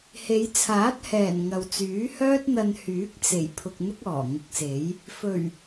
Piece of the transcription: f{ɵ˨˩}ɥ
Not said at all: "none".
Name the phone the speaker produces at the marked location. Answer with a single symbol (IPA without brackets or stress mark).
ɵ˨˩